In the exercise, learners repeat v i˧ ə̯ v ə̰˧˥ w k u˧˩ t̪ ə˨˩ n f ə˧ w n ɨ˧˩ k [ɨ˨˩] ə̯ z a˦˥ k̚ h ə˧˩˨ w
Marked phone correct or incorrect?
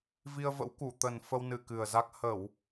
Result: correct